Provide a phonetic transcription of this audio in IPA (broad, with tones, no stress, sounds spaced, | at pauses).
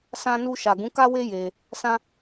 s ã˧ n u˧ ʃ a˨ ɡ ũ˨˦ k a˦ w e˦ j e˧ | s ã˦